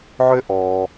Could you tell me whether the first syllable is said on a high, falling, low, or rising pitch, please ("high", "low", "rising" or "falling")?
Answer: high